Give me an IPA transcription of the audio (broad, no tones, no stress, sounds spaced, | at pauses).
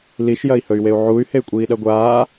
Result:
l i ʃ j ɐ i̯ h ɵ y̯ w e u̯ ʕ u y̯ h e y̯ kʷʼ iː ɗ ɐ ɡʷ aː